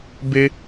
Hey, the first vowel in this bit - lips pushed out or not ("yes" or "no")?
no